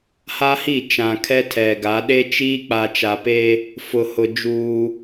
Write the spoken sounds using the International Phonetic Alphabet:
ha˦hi˦˨ t͡ʃã˨kʰɛ˦ tʰɛ˨ɡa˨˦ ɗe˦t͡ʃiː˦k͡pa˨ t͡ʃa˨pe˦ | fʊ˨hʊ˨ d͡ʒuː˦

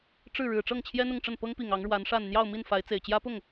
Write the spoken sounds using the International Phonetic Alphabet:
ʈ͡ʂɻ̩˥˩ ɻɻ̩˨˩ʈ͡ʂɤ˥˩ŋ t͡ɕʰjɛ˥n̪ʊ˥˧ŋʈ͡ʂə˥˩n pɤ˥ŋpi˨˩ŋ ɑ˧˥ŋɻwa˧˥nʂa˥˧n n̪jɑ˥˧ʊ̯mi˥˩nfa˧˥ɪ̯ t͡se˨˩ɪ̯t͡ɕjä˥pʊ˥˩ŋ

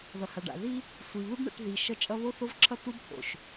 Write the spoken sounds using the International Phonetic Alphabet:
ðʌ˨ha˨ɖa̰˨ði˦ | sʷi˨βɯ˦bɳɛ̰˦˨ʈ ði˨ ʃʌ˦t͡ʃʼʌ˦ βo˦θo˦vǁʰʌ˦ tu˦bt̪ʰo̰˨ʃ

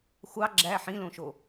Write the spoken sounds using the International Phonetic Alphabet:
xʷɑ ɡ͡ǁæ ħĩlõʃo

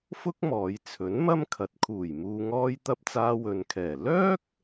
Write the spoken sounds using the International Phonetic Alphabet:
fʊ˥k̚mɔː˨˧jt͡sʰɵ˨˥n mɐ˥mkʰɐ˨˥t̚kʰuː˨˩j muː˨ŋɔː˧jt̪ɐ˧p̚ t͡saː˧wɵ˨nkʰɛː˨˩ lœː˥k̚

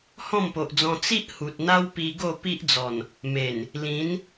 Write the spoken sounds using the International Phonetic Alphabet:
hɔ̃˥˧mpo˨ʔd͡zɔ̃˧ t͡si˦ʔ hu˨t̚n̪a˦wpi˧ ɡo˥˧pi˦ʔd͡zɔ˨˩n | me˨˩n | lĩ˨˦n

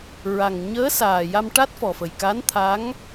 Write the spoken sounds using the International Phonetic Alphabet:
ɹa˨˩ŋ ɲəː˧˥saː˨˩ja˧m ʈa˦˥t̚fɔ˨˩fə˨˩j ka˧˥nt̪ʰa˧˥ŋ

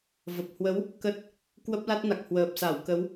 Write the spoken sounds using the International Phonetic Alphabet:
və˨˩p̚hwə˨˦w | kə˦˥t̚ | kwə˦˥p̚la˦˥t̚na˨˩k̚hwəː˨˩p̚ sa˧˩wkə˨˦w

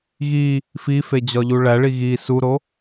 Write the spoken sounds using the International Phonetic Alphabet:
ɣi | fifed͡ʑɒʎu ɭæɭi ɣi suɾo

